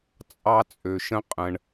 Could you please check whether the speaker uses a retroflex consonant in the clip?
yes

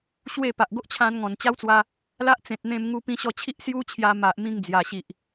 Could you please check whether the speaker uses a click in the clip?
no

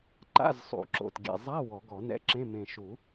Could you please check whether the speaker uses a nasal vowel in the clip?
yes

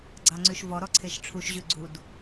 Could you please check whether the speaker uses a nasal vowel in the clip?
no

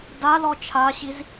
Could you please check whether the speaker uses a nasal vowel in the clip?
no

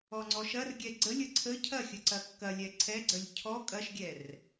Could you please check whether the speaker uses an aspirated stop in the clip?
yes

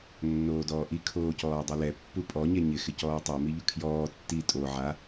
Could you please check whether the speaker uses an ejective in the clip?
yes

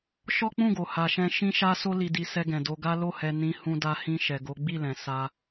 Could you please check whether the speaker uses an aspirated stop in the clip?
no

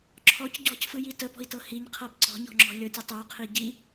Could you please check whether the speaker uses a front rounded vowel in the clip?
no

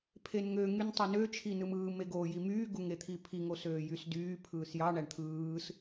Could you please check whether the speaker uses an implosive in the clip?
no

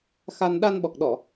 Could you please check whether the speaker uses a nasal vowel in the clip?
no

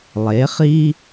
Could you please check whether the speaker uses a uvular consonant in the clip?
yes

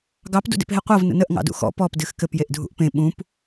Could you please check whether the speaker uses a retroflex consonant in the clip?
no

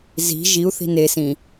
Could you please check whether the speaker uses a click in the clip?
no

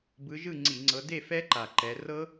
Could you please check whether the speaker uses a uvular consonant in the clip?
no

